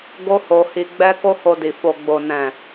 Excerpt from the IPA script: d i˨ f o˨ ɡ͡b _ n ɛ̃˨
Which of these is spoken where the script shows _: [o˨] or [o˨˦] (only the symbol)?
o˨